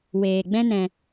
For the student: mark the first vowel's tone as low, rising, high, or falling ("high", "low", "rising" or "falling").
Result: low